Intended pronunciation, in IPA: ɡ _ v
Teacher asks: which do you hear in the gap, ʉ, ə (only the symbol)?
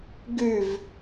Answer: ʉ